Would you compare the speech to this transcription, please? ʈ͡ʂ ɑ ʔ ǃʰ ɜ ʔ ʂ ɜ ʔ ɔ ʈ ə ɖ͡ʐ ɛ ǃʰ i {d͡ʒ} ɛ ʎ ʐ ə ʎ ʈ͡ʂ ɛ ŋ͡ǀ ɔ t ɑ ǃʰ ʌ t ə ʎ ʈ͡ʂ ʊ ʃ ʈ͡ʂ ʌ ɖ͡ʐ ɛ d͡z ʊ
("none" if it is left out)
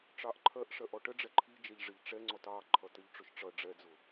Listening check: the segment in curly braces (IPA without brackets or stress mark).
d͡ʒ